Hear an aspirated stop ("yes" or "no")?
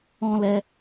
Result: no